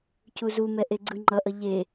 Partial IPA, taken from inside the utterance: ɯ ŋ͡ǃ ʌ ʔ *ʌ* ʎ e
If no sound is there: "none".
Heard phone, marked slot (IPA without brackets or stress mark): ʌ